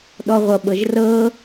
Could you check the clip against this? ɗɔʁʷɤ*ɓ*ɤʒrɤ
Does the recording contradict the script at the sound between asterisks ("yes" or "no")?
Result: no